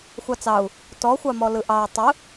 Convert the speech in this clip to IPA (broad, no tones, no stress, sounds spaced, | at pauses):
xʷ ɑ t͡s ɑ u̯ | t ɔ xʷ ɑ m ɔ l ɯ ʔ ɑ y̯ tˤ ɯ